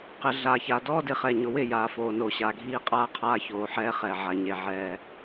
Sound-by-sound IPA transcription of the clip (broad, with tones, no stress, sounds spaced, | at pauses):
q ɪ˨ ɮ a˨ ç a˨ d ɔ˦ d ɪ˨ χ ɛ˨ ɲ ʊ˨ w ɪ˦˨ j aː˨ f oː˨ n oː˨ ɕ a˨ ɡʱ iː˦ qʼ aː˦ qʰ aː˦ ç oː˨ ħ ɛː˦ χ ɛ˨ ʕ a˨ ɲ e˨ ʕ ɛː˦